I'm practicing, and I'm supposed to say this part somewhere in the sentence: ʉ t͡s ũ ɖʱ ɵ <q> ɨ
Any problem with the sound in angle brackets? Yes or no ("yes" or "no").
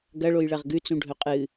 yes